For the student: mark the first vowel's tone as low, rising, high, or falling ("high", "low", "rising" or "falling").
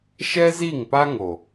high